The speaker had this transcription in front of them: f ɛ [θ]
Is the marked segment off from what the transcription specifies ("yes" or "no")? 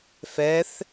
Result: no